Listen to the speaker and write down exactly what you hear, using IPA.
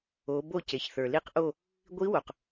o˩˧ b o˦˨ c e˩ ç θ ə˞˩ l i˦˨ q ʔ o˦˨ | ɡʷ i˧˥ w o˩ q

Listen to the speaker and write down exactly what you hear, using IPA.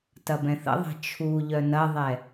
t ɐ b ɛ̃ θ ə̰ ðˤ ɛ̤ t͡ʃʰ u ʎ œ n ɐ ðˤ ɛ

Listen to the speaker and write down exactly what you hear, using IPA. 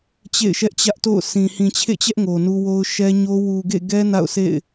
t͡ɕ ḛ˦˨ ɪ̯ ʃ ɛ˦ ʔ t͡ɕ ä˦ ʔ t o̰˦˨ ʊ̯ s ĩ˨ h ĩ˨ t͡ɕʰ ḛ˦˨ t͡ɕ ɛ˦ ʔ ŋ o˨ n u˦ w o˦ ʊ̯ ʃ ɛ˦ ɲ o˦ w u˨ ɡ ḛ˦˨ ɡ ɛ˦ n a̰˦˨ ʊ̯ s ḛ˦˨ ɪ̯

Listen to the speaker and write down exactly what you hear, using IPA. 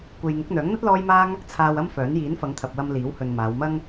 kʷ e˧ j ŋ ʊ˨˥ k̚ n̪ œː˨˥ ŋ n̪ ɐ˥ t̚ l ɔː˥ j m aː˥ ŋ | t͡sʰ aː˧ w ɐ˥ m f œː˨˥ n j iː˨˥ n f ɐ˨˧ ŋ t̪ʰ ɐ˨ p̚ w ɐ˧ m l iː˨˥ w h ɵ˨ n m aː˨˧ w m ɐ˥ ŋ

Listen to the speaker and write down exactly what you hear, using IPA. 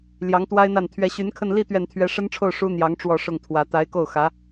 l j ɑ˧˥ ŋ t̪ w a˥ ɪ̯ n̪ a˥˩ n t̪ʰ ɥ ɛ˧˥ ɕ y˧˥ n kʰ ə˥˧ n l i˥˧ t̪ ɥ ɛ˥˩ n t̪ʰ ɥ ɛ˥ ʂ ə˥ n ʈ͡ʂʰ o˥˩ ʊ̯ ʂ u˥ n̪ j ɑ˧˥ ŋ ʈ͡ʂ w ɔ˥˧ ʂ ʊ˥˩ ŋ t̪ʰ w ä˧˥ t̪ a˧˥ ɪ̯ k o˥˩ ʊ̯ x ä˧˥

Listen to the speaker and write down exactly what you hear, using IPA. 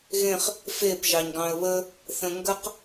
ɣ ẽ χ | f e p ʒ ɑ ɲ ɡ ɑ̃ ə̯ β ə | θ ə̃ ŋ ɡ ə q

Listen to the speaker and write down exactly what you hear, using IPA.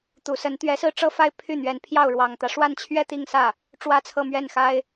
t̪ u˨˩ s ə˧˥ n t̪ ɥ ɛ˧˥ s ɹ̩˥˩ ʈ͡ʂ ɤ˥ f a˥ ɪ̯ pʰ y˥˩ n̪ ɥ ɛ˧˥ n pʰ j ɑ˥˩ ʊ̯ ɻ w ɑ˨˩ ŋ t̪ ä˦ ʂ w a˥˧ n t͡ɕʰ ɥ ɛ˥˧ t̪ i˥˧ ŋ s ä˥˩ | ʈ͡ʂ w ä˥ t͡sʰ ɤ˥˧ m ɥ ɛ˥˩ n x a˥ ɪ̯

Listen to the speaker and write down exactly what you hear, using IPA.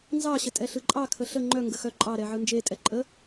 n z ɑ ɕ ə tʼ ɛ ɬ ɯ ǃʼ ɑ kʰ ə ɬ ə ŋ͡ǃ œ ŋ ɡ ə x œ ǃʼ ɑ ɾ ɛ ʕ ɯ n d͡ʒ e tʼ ɛ ǃʼ ə

